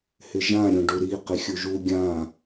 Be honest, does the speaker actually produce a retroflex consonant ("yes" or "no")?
yes